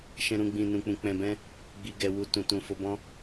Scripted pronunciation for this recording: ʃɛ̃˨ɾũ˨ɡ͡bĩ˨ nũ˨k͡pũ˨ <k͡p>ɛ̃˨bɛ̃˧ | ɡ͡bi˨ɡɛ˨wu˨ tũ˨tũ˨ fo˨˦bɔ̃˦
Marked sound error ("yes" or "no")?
no